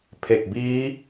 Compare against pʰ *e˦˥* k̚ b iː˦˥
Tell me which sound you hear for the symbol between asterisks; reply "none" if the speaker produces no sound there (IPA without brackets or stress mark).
e˨˩